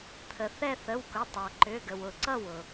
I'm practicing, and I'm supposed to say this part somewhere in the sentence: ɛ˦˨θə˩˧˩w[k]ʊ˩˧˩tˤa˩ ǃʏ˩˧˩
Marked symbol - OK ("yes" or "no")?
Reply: yes